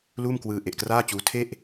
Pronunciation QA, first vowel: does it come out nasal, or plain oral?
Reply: oral